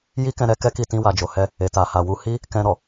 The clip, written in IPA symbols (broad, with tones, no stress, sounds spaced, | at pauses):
j i˦ k ɛ̃˧ ɾ ɛ˦ k ɛ˦ k i˦˨ t ĩ˧ w a˨ d͡ʒ o˨ h ɛ˧ | e˨ t a˨ h a˨ w u˨˦ h i˦ | k ɛ̃˧ ɾ ɔ˨